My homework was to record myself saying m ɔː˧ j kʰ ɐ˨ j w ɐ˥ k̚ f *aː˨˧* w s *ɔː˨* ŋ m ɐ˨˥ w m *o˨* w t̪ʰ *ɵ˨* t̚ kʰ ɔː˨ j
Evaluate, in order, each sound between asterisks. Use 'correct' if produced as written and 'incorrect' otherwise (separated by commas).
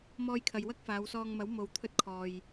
correct, incorrect, correct, incorrect